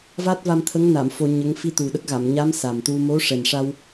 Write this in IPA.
va˦˥t̚va˧mt̪ʰə˧˥ŋna˨˩˨m fo˧ɲə˧˥ŋ fi˧t̪u˨˩ɗə˦˥k̚ɣa˨˩˨m ɲa˧˥m sa˨˩mt̪u˧ mo˧˥ʂɛ˨˩nʂa˧w

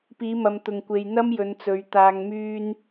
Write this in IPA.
piː˨˧mɐ˨mt̪ʊ˨ŋ kʷe˨j n̪ɐ˥mjɵ˨˧nt͡sɵ˨˧ɥ t̪aː˨ŋmyː˧n

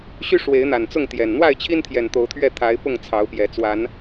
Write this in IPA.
ɕy˦ʂwe˨˦ɪ̯ n̪a˨˩nt͡sʊ˥˨ŋt̪jɛ˨˩n n̪wa˥˨ɪ̯t͡ɕʰi˦nt̪ʰjɛ˨˩n t̪o˨˦ʊ̯t̪ʰɥɛ˥˨t̪ʰa˨˦ɪ̯pʊ˥˨ŋ t͡sʰɑ˨˦ʊ̯pjɛ˨˦ t͡swa˨˦n

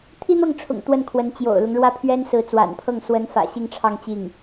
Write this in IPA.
t̪ʰi˥n̪ɤ˥˩ŋʈ͡ʂʰʊ̰˨˩ŋ t̪wə˥˩nkʰwə˧˥n t͡ɕjo̰˨˩ʊ̯lʊ˦ŋ ɻwä˥˩pʰɥɛ˥n sɹ̩˧˥t͡swa̰˨˩npʰɤ˥˩ŋ swə˧˥nfä̰˨˩ ɕi˥˧ŋʈ͡ʂʰɑ˥˧ŋ t͡ɕi˥˩ŋ

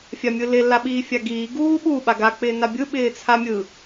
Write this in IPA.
fʲamʲɯlɪ laɓiːfʲaɡiː ɡuːɓu ɓaɡa k͡pɪːnabʲɯ ɓɪːt͡sʰamʲɯ

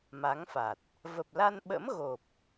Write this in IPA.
ma˨˦ŋfa˨˩t̚ | və˨˩p̚la˧nɓə̰˧˥m ɣo˨˩p̚

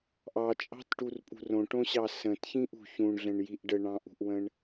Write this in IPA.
ʔɑt͡ʃʼɑ̤tʈurpʼṳ rõʈõɕɑ sə̃tçĩʔṳ çũɳɮə̃ɳjiʔ ɖəɳɑ̃ʔṳʔwə̃ɳ

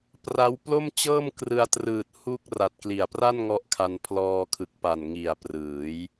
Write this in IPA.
pra˦˥wplo˥˩mt͡ɕɤː˥˩m krɯ˧a̯trɯː˨˩t̚ hu˥˩k̚ra˨˩t̚ kli˨˩a̯pra˥˩n ŋɔ˦˥ʔkʰa˧n pʰlɔː˧kʰɯ˨˩k̚pa˨˩n ŋi˨˩a̯prɯː˩˦j

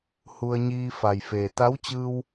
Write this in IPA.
hu˧ə̯ɲiː˧ fa˩jfeː˩ t̪a˧˥wt͡ɕɯː˧w

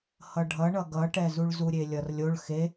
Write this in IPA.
hʌɖʱʌɳʌ ɡʌʈɛzuɭ zuɾʲelʲʌrlʲoɭ xe

